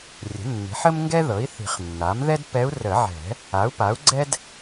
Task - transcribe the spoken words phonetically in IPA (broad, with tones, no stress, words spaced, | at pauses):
rʲə̤˩˥nːi̤˩˥ħə˥m ŋɡɛ˥ðɤ˩˥i̯θi̤˨˩˦χnːa˩˥m ðɛ˥dpɛ˧˥u̯ rə˨˩˦ʕɛ̤˨˩˦ | a˩˥u̯pa˩˥u̯ɡ͡ǀɛ˥d